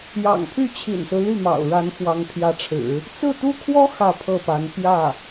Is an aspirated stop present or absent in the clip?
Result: present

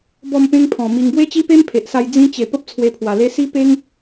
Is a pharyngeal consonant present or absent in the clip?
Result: absent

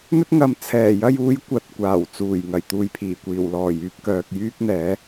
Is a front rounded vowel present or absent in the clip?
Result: present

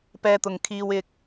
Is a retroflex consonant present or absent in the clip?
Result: absent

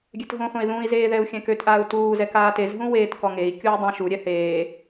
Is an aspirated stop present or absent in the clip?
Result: absent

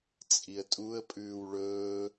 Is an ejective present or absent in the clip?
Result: present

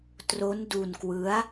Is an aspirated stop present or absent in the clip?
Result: absent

